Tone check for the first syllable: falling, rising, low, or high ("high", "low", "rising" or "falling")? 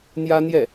high